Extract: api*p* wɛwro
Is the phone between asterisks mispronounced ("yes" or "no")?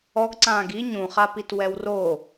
yes